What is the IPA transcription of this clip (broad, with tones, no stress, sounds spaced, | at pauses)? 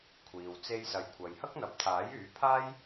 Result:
kʷʰ iː˨ w t͡s e˥ j s ɐ˧ j kʷʰ ɐ˨ j h ɐ˥ k̚ n̪ ɐ˨˥ p̚ t̪ʰ aː˨˥ j yː˨˥ pʰ aː˥ j